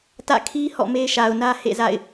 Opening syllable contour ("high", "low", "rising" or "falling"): falling